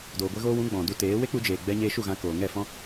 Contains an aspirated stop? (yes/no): no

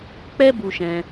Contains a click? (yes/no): no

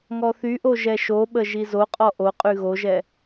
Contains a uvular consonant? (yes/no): yes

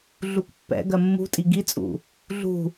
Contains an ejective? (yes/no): yes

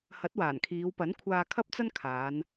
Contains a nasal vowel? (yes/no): no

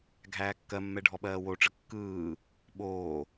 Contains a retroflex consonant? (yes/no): yes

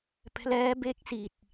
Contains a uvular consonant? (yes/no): no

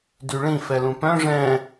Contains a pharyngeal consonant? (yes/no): no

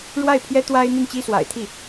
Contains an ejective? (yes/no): no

